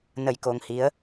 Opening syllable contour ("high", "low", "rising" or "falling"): low